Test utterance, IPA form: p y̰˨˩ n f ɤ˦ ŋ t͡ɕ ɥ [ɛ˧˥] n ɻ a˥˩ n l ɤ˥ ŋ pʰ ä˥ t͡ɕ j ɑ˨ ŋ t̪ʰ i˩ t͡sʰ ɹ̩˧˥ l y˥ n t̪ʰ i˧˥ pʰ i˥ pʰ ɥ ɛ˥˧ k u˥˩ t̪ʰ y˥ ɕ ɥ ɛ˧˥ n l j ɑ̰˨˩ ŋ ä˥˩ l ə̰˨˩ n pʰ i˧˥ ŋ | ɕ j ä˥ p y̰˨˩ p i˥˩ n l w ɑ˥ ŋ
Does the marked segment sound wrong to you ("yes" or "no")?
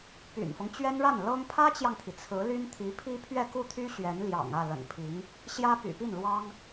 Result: yes